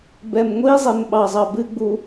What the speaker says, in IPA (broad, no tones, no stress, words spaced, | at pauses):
bɛmŋʷizˤem ɓɑzˤɑbɨɡ͡bu